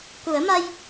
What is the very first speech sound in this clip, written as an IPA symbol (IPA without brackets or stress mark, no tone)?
k